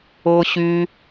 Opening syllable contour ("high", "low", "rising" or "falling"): high